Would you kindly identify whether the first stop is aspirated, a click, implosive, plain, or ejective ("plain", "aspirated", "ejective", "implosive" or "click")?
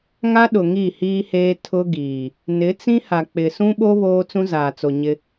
implosive